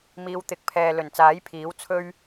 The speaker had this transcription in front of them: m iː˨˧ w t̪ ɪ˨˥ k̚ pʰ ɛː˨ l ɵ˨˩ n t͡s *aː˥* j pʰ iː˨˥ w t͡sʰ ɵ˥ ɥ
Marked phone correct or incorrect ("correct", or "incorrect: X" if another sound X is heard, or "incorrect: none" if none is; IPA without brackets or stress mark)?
incorrect: aː˨˥